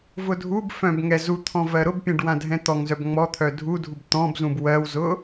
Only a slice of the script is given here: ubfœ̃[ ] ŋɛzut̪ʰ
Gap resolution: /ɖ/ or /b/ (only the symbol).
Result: b